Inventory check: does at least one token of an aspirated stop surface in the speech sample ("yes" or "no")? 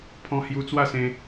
yes